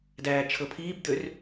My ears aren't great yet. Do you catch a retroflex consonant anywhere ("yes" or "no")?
no